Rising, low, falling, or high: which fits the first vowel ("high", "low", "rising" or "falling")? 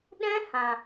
high